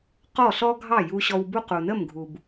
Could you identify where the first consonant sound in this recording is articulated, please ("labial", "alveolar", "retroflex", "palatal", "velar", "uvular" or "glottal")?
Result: uvular